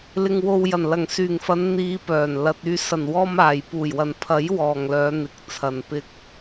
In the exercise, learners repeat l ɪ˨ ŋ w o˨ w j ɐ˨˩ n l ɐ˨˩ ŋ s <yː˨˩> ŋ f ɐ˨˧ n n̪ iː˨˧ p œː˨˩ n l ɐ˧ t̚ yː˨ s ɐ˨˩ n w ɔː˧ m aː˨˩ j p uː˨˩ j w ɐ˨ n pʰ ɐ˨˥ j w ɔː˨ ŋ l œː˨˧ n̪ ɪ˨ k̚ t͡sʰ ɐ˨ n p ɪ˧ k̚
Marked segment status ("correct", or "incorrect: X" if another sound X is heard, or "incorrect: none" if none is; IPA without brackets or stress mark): correct